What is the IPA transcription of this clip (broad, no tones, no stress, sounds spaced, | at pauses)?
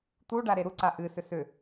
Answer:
t̪ u ɖ a ɾ e ɾ u ǀ a ʔ ɨ s ʏ s ʏ